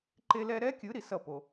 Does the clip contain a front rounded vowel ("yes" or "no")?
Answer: no